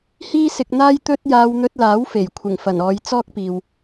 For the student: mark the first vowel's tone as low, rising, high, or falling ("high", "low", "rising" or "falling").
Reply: high